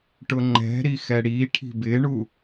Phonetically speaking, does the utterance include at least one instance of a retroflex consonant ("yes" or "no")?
yes